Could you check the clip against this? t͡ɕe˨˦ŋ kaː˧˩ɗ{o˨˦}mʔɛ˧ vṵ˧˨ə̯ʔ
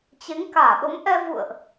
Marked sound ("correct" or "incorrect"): correct